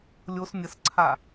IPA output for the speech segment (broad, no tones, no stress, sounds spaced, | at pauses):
lʲ o s nʲ ə s ǀʰ a